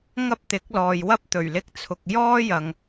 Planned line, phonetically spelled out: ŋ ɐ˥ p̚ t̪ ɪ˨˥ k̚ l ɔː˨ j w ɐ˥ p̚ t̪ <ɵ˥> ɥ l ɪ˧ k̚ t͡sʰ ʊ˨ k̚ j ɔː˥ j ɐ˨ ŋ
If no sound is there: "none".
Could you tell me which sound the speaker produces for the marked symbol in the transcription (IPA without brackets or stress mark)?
ɵ˨˩